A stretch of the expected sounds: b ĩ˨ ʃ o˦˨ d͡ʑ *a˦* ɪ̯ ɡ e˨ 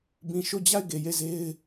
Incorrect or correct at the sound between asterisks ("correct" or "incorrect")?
incorrect